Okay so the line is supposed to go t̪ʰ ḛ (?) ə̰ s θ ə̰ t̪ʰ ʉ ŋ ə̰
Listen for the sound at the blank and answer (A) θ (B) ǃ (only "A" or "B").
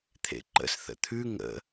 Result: B